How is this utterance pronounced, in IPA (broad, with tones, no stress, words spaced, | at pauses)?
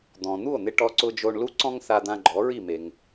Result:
d̪ɔ̃˩n̪u˥˩o̯n̪ɪ˧ ʈɔ˧ǀʊ˧d͡ʒo˧ɳlu˥ ǀɔ̃˥ŋθa˧d̪ã˧ ɡ͡ǃɔ˩˥ɹi˥˩me˩ŋ